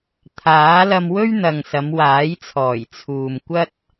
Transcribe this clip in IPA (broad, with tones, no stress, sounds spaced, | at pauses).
t̪ʰ aː˨˥ l ɐ˧ m w ɵ˥ ɥ n̪ ɐ˨ ŋ s ɐ˨˧ m w aː˨˥ j t͡sʰ ɔː˨˩ j t͡sʰ uː˨ m kʷ ɐ˥ t̚